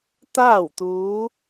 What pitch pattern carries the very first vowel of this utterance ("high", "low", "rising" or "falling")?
falling